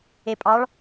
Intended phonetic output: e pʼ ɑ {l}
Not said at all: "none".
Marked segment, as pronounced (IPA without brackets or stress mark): ɭ